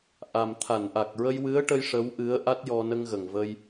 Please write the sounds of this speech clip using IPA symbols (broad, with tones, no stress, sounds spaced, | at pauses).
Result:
ʔ a˨˩ m t̪ʰ a˨˩˨ n ʔ a˨˩ k̚ ɹ ə˧ j w ɨ˧˥ ə̯ ʈ ə˧ j ʂ ə˧˥ w ʔ ɨ˧˥ ə̯ ʔ a˦˥ t̚ j ɔ˧ n ə˧ ŋ ɣ ə˨˩ ŋ v ə˧ j